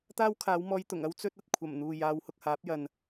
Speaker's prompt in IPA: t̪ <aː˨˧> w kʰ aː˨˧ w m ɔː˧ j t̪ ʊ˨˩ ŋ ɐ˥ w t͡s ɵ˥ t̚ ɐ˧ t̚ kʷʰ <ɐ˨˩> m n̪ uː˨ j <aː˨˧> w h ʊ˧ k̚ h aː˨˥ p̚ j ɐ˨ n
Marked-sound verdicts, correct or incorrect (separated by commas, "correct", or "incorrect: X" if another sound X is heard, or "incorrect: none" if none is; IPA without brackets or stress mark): incorrect: aː˥, correct, correct